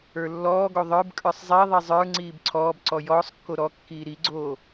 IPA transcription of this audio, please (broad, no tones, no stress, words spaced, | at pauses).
ə˞lːɔːɡo ðˤə˞b kʼə˞sˤzˤiðˤi zˤə˞ ŋ͡ǀiːbǀʰɔːbǀɔ jɔːsˤkːo ɾɔkːiː ɾiɡ͡ǀoː